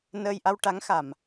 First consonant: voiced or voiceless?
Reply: voiced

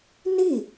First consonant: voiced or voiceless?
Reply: voiced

